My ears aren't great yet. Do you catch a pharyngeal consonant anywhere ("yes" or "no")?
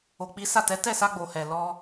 no